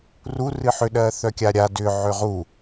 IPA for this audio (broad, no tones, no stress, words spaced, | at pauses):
ru rɨħʏ ɗɜθœkʲaɾʲa dʏ ʕʏʁu